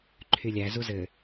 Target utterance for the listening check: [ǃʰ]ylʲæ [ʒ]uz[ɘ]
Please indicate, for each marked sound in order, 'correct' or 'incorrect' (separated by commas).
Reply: correct, incorrect, correct